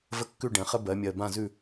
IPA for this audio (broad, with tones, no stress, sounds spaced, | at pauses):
v ə˦ kː ʉ˦˨ ɖ ɛ̃˩˧ χ ə˦ b ɜ˩˧ mʲ ɜ˨˩ b ã˦˨ z ʉ˦˨